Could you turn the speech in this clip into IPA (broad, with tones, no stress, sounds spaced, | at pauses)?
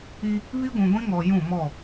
i˦ | β i˦ ɡʷ ũ˨ ɡʷ ĩ˦ ŋ ɔ˨ j ũ˦˨ m ɔ˦˨